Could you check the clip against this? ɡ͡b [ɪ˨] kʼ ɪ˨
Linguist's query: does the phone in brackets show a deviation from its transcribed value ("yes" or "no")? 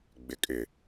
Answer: no